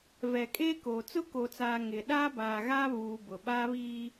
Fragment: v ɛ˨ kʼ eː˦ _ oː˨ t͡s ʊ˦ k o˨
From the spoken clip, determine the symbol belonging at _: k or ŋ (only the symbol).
k